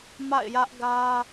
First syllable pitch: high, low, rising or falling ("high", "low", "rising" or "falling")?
falling